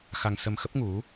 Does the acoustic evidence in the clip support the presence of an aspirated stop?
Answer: no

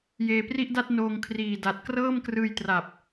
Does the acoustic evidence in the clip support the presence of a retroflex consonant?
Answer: no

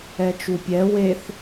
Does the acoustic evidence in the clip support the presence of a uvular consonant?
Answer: no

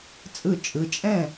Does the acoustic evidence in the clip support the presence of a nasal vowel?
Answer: yes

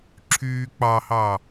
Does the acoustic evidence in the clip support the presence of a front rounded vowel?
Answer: yes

